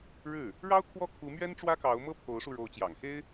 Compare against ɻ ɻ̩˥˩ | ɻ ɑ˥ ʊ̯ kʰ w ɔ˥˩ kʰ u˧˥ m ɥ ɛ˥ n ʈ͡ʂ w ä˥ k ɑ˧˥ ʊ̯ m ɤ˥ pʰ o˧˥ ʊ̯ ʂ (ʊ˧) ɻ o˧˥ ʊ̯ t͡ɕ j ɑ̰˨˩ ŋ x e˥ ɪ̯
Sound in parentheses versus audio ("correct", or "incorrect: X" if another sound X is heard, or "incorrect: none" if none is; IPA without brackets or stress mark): incorrect: u˧